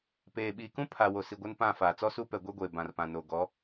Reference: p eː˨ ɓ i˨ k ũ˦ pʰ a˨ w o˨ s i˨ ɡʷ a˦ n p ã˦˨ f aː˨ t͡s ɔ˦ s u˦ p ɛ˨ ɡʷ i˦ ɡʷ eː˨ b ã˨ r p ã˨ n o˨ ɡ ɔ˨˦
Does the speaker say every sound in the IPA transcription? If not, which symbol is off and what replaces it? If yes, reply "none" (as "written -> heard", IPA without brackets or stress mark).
none